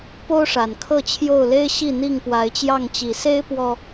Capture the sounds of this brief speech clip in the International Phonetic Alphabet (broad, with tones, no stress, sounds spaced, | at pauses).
p o˦ ʊ̯ ʂ a˨˩ n kʰ ɤ˥˨ t͡ɕʰ j o˥˨ ʊ̯ l e˦ ɪ̯ ɕ i˥˨ n̪ i˥˨ ŋ p w a˨˦ ɪ̯ t͡ɕ j ɑ˥˨ ŋ t͡ɕ i˨˩ s e˦ ɪ̯ p w ɔ˨˩